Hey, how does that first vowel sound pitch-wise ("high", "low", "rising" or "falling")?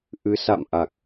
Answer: rising